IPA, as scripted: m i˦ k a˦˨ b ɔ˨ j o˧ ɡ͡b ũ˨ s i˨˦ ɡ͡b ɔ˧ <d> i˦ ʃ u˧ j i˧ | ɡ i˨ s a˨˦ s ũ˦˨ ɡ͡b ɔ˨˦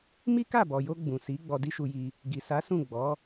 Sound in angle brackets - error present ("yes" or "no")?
no